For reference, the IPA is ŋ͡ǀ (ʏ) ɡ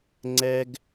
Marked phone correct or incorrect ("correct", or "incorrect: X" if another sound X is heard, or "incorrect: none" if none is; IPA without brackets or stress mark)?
incorrect: ɛ